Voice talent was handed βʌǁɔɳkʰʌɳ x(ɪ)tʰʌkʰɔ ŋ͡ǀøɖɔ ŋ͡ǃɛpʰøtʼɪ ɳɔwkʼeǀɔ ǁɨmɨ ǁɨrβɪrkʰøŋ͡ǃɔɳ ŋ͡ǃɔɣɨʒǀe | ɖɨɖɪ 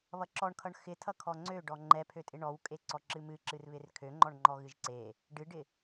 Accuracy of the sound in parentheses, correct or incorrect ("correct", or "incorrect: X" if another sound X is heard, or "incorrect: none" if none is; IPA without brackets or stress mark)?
correct